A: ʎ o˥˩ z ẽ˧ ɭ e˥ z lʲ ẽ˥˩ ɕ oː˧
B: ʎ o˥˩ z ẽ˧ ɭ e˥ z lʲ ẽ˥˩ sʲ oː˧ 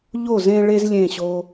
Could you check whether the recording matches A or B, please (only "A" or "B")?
A